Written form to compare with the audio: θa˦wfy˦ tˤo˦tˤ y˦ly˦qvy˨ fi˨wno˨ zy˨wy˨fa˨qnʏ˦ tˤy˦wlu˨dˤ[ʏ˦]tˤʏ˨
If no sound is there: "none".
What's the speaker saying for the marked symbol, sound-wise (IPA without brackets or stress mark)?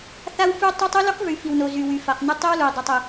ʏ˨